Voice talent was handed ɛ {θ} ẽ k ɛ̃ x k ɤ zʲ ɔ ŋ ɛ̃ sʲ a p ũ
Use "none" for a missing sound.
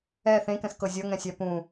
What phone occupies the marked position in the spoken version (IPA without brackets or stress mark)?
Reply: θ